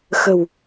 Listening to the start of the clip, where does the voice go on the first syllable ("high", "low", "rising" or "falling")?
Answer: low